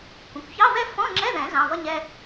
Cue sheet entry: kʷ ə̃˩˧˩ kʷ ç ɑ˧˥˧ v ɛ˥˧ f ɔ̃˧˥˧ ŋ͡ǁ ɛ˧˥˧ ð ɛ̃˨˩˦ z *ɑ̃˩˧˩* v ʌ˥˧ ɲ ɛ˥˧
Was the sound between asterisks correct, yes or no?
yes